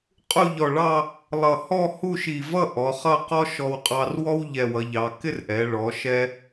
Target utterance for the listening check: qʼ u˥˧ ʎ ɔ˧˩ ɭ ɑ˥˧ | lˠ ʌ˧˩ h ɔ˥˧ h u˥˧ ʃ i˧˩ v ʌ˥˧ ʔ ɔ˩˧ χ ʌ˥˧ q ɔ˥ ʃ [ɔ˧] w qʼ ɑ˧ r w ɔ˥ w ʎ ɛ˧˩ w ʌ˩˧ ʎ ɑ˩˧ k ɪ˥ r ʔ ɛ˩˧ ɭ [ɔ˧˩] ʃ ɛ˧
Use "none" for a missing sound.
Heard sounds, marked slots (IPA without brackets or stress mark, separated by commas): ɔ˧, ɔ˩˧